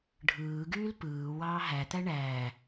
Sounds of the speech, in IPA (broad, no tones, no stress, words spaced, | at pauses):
ɖʱɯːɡyːl pɯːwɑː ɦæt̪æ ɳæː